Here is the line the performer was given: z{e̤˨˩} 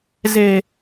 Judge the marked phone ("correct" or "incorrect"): correct